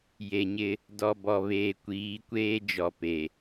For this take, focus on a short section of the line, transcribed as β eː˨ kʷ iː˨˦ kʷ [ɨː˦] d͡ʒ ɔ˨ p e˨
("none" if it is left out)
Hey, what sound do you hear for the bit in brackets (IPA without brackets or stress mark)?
eː˦